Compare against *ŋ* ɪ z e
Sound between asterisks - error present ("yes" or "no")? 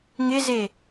no